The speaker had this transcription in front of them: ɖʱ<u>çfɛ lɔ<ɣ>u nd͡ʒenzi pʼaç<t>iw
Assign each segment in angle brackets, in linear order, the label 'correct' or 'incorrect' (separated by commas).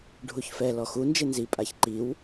correct, incorrect, incorrect